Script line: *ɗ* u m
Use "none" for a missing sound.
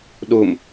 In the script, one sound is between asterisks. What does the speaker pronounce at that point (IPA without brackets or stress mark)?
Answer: ɗ